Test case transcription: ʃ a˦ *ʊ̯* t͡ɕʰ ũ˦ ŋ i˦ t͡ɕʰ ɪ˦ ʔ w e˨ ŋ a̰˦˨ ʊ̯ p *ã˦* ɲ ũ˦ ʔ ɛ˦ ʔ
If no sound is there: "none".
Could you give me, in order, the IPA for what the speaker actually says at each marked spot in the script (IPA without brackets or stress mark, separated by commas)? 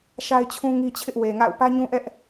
ɪ̯, ä˦